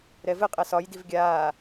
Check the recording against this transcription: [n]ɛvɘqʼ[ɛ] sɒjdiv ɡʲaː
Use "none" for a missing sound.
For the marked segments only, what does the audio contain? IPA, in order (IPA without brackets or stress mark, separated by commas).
ɾ, ɛ